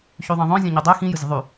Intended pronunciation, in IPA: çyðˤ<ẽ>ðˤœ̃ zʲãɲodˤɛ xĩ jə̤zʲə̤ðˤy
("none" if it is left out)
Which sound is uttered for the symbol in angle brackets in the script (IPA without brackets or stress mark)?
ɛ̃